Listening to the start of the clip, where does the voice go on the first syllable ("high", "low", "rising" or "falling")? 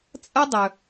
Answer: high